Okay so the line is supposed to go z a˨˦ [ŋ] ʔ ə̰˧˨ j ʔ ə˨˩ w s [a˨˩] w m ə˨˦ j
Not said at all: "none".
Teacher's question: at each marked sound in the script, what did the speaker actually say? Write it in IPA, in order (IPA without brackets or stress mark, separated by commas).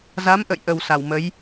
m, a˧˩